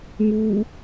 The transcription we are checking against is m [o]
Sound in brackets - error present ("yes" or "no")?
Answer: yes